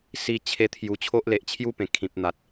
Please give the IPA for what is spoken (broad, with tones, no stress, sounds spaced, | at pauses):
s i˧ t͡ɕʰ e˧ t̪ʰ j u˨˩ t͡ɕʰ o˦ ʔ l e˨ ʔ t͡ɕʰ j u˥˧ p ẽ˨˩ kʰ ĩ˨ p̚ n̪ a˨ t̚